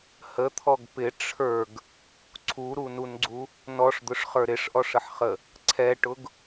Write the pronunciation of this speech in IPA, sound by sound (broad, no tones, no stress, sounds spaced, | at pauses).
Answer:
h ə t̪ʰ ɔ ɡ p ɪ ʈ͡ʂʰ ə˞ ɡ | ǀʰ u ɾ u n u n ɡ͡ǀ u | n ɔ ʂ d̪ ʊ ʂ χ ə˞ ɾ ɪ ʂ ʔ ɔ ʂ ə ħ χ ə | ǀʰ ɛ ʈ ʊ ɡ